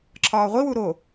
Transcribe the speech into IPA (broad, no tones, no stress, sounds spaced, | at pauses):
ǁʰ ɒː ʁʷ i w u ɾ o